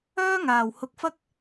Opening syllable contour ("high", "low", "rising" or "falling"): high